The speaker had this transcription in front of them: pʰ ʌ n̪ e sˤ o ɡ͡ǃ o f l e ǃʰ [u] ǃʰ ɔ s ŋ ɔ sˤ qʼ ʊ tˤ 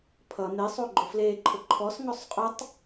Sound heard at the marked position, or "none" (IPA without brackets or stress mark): ʊ